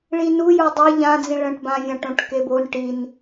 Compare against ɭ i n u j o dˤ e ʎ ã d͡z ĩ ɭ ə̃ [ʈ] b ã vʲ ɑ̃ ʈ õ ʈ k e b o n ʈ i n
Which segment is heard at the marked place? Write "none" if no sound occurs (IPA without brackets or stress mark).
ʈ